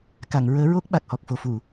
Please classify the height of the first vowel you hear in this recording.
low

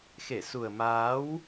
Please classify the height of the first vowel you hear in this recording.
mid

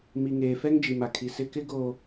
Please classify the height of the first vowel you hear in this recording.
high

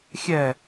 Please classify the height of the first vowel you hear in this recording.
mid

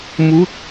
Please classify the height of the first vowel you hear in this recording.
high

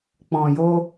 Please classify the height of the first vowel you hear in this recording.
mid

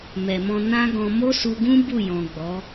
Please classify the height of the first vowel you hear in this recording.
mid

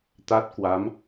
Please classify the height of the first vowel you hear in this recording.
low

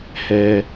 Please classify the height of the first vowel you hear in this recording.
mid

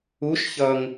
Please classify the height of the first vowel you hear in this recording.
high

